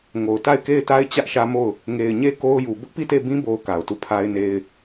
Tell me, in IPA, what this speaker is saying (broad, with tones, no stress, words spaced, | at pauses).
ŋo˨ʊ̯ ta˦˨ɪ̯ke˦˨ɪ̯ta˦ɪ̯ t͡ɕä˦ʔʃä˦mo˦˨ʊ̯ | ŋe˨ɪ̯ɲe˦ ko˦ʊ̯ju˨ bʊ˦ʔpi˦˨te˦˨ bĩ˦bo˨ʊ̯ ka˨ʊ̯tu˦˨pʰa˦ɪ̯ne˦ɪ̯